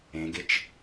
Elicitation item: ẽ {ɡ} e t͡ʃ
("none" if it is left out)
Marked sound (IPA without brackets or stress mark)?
ɡ